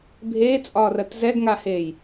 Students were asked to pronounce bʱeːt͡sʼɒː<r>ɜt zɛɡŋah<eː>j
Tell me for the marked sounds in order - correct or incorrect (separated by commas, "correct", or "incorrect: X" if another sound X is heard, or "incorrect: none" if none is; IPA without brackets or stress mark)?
correct, correct